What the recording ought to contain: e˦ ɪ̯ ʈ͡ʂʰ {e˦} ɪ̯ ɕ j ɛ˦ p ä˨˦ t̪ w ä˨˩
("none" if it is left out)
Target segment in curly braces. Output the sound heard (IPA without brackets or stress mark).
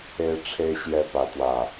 e˦